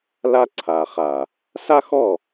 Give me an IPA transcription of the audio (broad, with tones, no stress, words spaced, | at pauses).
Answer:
la˦ǀʰa˨ χa˨ | sa˦xɔ˦˨